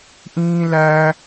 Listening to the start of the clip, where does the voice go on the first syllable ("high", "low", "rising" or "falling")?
high